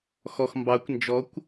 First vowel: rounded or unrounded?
rounded